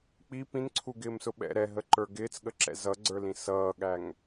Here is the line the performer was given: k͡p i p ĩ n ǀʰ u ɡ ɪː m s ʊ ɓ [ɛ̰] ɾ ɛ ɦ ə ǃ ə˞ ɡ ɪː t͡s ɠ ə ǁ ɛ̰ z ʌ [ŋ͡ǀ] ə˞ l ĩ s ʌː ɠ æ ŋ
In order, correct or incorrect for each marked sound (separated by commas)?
correct, incorrect